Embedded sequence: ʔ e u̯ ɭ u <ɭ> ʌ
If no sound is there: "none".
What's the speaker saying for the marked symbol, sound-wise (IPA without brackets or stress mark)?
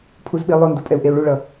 ɭ